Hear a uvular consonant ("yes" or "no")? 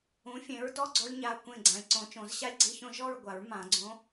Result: no